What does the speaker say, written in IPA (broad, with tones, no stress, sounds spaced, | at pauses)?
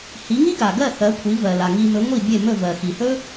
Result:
h i˩˥ ŋ i˥ ɡ a˩ ɡ ɜ˥˩ θ ɜ˩˥ kʷʰ i˩˥ v ɜ˩ l a˩ ŋ i˧ m ɵ˩˥ ŋʷ i˥˩ bʲ e˥˩ m ɵ˥˩ v ɜ˩ x i˩ h ɵ˥